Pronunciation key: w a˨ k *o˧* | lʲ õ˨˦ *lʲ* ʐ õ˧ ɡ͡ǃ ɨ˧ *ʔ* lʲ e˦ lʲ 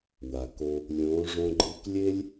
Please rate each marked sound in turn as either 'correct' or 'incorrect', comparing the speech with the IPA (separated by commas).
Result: correct, incorrect, incorrect